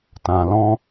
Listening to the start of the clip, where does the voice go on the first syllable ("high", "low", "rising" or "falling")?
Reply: low